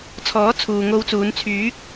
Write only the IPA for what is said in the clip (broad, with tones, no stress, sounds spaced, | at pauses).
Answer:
t͡sʰ ɔː˨˥ t͡sʰ uː˨ ŋ o˧ w t͡s uː˨˧ n t͡sʰ yː˨˥ k̚